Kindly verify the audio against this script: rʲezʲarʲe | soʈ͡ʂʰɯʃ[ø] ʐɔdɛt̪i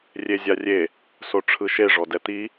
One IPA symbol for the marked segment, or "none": e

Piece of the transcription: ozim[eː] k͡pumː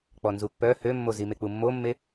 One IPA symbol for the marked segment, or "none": e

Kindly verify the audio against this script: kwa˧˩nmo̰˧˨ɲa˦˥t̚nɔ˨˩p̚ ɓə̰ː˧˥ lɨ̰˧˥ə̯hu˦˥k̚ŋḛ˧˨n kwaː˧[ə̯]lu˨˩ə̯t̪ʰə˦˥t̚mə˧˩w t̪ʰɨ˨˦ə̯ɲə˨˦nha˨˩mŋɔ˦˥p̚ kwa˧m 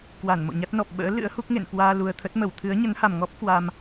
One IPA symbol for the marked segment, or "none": none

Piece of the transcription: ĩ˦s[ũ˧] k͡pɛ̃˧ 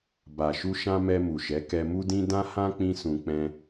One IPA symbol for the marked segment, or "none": ũ˧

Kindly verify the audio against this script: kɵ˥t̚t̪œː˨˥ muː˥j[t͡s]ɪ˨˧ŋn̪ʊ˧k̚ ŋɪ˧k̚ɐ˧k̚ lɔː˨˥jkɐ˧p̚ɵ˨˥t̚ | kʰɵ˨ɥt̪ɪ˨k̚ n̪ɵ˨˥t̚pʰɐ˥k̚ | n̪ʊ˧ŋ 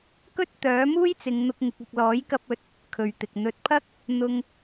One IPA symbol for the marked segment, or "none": t͡s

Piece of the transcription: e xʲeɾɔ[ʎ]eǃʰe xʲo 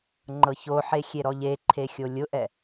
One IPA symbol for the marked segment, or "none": ʎ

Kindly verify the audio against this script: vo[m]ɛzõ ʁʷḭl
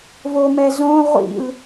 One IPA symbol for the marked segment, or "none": m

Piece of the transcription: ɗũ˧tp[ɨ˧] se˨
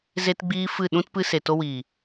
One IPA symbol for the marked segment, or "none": ɨ˧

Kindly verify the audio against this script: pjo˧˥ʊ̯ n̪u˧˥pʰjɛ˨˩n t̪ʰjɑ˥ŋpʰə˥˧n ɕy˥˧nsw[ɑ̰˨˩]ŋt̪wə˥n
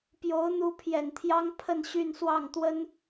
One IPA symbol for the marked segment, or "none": ɑ˥˩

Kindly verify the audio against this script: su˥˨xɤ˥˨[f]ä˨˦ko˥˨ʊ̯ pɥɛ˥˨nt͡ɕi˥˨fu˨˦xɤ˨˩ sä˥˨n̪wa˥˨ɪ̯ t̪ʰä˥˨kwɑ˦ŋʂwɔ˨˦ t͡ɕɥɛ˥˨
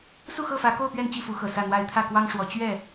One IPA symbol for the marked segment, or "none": f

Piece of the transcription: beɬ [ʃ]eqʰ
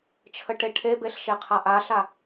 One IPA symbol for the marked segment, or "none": ʃ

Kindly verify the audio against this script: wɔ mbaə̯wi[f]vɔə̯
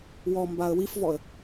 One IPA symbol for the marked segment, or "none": f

